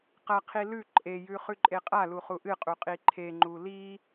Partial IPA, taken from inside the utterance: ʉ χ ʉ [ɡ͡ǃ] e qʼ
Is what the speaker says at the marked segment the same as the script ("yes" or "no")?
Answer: no